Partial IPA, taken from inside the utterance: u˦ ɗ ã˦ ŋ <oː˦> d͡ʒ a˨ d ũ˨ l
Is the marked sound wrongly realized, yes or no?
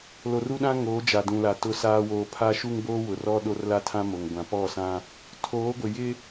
yes